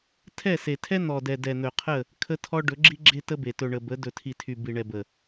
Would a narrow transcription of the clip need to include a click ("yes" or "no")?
yes